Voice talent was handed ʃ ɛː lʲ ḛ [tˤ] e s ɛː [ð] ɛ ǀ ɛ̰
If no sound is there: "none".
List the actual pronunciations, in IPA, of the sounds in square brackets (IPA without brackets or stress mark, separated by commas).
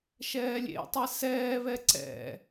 tˤ, β